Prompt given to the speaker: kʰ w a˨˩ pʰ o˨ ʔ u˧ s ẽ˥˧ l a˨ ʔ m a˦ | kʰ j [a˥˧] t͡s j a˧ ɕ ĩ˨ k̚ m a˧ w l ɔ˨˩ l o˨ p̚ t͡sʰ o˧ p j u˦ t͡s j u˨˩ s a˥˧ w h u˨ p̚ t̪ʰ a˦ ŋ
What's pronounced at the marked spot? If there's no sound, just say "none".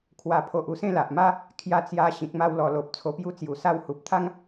a˧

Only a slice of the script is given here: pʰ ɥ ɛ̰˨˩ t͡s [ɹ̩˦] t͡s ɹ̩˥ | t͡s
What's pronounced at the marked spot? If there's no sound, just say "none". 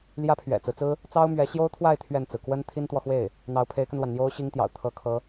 ɹ̩˦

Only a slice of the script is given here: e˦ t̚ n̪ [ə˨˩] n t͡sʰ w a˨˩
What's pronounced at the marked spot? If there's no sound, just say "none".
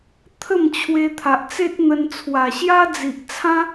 ə˧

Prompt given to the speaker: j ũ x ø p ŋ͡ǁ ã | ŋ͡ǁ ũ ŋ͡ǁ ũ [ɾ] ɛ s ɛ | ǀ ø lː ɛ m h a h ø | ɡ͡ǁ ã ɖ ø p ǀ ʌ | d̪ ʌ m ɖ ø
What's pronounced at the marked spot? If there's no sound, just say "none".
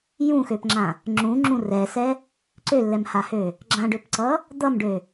r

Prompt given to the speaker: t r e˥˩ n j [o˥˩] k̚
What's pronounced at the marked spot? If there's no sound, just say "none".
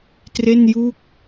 u˥˩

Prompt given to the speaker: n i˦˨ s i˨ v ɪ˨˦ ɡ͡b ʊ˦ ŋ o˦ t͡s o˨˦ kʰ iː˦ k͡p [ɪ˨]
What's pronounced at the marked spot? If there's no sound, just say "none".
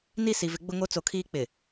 ɪ˨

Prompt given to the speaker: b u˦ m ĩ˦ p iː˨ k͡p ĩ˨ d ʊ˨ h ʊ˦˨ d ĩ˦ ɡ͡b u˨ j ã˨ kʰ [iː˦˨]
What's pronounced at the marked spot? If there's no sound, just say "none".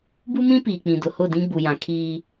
iː˦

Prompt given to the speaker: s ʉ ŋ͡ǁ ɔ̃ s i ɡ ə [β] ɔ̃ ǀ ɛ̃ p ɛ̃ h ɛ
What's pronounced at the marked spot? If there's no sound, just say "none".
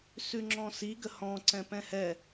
h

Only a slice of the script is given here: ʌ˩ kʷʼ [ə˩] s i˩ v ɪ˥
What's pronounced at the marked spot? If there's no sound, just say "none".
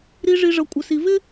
ə˩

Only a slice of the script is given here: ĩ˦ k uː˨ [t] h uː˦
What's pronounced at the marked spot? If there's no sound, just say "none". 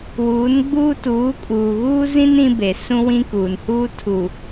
n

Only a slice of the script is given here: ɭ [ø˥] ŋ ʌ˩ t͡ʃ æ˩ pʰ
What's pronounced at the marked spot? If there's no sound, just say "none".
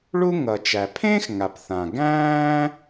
u˥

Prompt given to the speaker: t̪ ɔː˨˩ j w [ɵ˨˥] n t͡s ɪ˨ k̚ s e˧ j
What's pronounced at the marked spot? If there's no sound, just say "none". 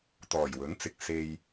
ɵ˨˥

